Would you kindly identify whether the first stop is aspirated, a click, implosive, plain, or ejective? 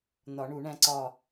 click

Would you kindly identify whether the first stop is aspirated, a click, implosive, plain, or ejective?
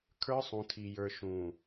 aspirated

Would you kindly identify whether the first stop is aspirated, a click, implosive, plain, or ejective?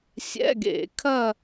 plain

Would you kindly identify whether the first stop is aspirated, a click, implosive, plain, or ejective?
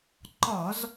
click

